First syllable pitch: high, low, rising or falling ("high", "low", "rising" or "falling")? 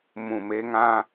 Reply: low